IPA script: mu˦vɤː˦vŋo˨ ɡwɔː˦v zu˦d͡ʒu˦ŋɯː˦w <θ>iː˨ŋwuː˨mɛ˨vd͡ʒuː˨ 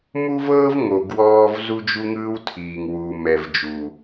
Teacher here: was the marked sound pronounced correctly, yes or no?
no